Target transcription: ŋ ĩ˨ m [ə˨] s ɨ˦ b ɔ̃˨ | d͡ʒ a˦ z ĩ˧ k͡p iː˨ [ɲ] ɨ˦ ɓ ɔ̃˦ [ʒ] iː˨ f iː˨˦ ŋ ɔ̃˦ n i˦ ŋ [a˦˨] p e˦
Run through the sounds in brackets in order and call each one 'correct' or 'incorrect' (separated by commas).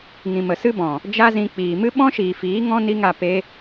correct, incorrect, incorrect, correct